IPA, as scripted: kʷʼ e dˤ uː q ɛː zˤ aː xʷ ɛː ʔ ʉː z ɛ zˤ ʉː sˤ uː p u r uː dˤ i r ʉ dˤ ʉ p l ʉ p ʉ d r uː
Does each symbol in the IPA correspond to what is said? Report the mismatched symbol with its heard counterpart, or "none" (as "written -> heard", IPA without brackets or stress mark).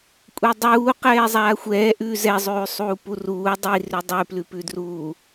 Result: none